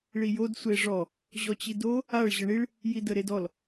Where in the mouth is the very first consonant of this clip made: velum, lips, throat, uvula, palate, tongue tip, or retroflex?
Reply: retroflex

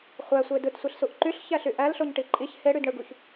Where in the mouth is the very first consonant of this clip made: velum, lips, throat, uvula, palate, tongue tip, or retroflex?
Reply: uvula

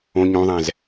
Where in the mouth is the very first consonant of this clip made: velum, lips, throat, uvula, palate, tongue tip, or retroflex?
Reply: palate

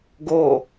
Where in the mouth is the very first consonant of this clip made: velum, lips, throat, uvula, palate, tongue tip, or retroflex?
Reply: velum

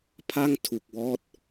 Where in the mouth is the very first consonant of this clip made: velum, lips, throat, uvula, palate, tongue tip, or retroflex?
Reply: lips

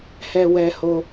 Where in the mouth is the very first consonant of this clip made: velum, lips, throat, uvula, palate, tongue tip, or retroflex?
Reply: throat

